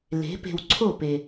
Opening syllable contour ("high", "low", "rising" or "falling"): rising